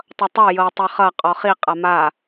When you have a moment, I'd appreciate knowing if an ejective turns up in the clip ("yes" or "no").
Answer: yes